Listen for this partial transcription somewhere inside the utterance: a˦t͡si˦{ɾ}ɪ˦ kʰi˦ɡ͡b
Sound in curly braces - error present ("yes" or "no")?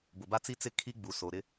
yes